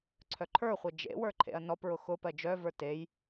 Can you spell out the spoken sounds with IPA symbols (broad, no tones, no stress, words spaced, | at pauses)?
ǀʰœǃʰə˞χʷɜ d͡ʒḛwə˞ ǃʰḛɐ̯nɔpɹʊ xʊ pɜd͡ʒœvə˞ tej